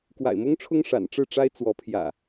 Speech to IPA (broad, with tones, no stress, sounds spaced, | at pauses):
k w a̰˨˩ ɪ̯ m ʊ˦ ŋ ʈ͡ʂʰ ʊ˦ ŋ ʂ a̰˨˩ n ʈ͡ʂ ɻ̩˥˨ ʈ͡ʂ a˦ ɪ̯ t͡s w ɔ˨˦ pʰ j ä̰˨˩